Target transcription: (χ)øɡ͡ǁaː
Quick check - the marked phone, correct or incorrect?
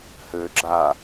incorrect